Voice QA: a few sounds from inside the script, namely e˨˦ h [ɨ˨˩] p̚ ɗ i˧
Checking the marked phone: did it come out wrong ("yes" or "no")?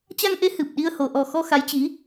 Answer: no